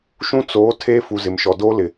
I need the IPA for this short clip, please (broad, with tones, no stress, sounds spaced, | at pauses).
ʃ ũ˦ t͡s oː˨˦ tʰ eː˦ f u˨ z ɪ˨ m ʃ ɔ˨ d oː˦ l ɪ˨